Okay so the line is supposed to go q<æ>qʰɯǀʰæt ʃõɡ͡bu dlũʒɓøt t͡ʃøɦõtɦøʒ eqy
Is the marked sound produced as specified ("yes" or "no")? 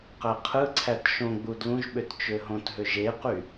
yes